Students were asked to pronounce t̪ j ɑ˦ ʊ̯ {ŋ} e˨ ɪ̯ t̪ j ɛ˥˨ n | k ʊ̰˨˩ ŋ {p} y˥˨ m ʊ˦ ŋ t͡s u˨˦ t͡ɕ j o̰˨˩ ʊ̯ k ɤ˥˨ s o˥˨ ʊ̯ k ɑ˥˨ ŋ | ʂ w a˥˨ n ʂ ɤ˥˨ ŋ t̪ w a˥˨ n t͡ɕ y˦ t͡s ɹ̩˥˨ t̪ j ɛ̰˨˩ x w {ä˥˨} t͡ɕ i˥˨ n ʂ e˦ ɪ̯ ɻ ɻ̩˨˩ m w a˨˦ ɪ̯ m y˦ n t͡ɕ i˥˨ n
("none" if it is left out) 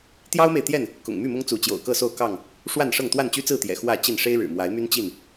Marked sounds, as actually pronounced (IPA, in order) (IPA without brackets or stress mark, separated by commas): m, m, ä˥˨